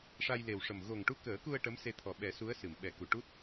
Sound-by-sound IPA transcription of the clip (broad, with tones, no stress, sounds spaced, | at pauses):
ʂ a˧ j l e˨˩ w ʂ ə˨˩ m ɣ o˨˩ ŋ ʈ u˧ k əː˨˩˦ k u˧ ə̯ ʈ ə˧˥ m s e˧ t̪ʰ ɔ˨˩ ɓ ɛ˨˩˦ s u˧˥ ə̯ s ɨ˨˩˨ m ɓ ɛ˨˩˦ k u˨˩˨ ʈ u˦˥ t̚